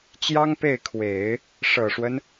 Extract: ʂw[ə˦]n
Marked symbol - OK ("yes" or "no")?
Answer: yes